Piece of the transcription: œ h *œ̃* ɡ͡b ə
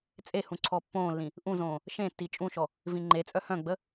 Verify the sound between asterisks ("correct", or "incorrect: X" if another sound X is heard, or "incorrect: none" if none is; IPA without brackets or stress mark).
correct